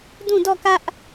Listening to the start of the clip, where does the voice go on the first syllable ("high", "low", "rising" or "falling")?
falling